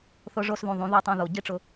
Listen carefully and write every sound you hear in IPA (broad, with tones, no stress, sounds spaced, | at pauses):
θ ʊ˧ ʐ o˧ s ð ũ˨ ðˤ ũ˨˦ ð u˧ tˤ õ˧ ð o˨ ɟ i˦ ʈ͡ʂ ʊ˧